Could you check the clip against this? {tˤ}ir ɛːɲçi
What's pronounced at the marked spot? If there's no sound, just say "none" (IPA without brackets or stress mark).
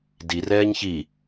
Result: d